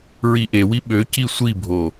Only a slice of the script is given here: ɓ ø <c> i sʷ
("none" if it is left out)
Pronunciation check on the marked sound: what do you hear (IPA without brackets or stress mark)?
c